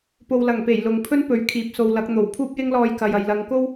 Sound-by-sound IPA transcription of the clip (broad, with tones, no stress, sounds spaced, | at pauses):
p o˨ w l ɐ˨˩ ŋ p e˨˩ j l ʊ˨ ŋ pʰ ɵ˥ n p ɵ˨ ɥ kʰ iː˨˥ p̚ s o˨ w l ɐ˨˥ k̚ n̪ o˨˩ w pʰ uː˥ p̚ j ɪ˥ ŋ l ɔː˧ j k ɐ˨ j ɐ˨ j l ɐ˨˧ ŋ k o˥ w